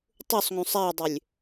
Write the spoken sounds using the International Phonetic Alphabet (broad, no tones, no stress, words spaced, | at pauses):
tˤusˤŋũsˤ adˤʏlʲ